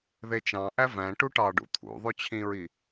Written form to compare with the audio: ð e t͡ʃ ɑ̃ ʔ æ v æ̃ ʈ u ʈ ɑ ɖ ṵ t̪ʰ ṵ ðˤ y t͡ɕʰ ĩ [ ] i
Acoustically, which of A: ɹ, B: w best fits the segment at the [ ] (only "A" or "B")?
A